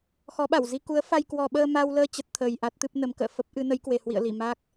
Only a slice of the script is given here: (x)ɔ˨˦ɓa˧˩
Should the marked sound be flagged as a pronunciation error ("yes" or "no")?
no